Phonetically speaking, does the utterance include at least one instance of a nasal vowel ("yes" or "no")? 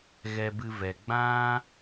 yes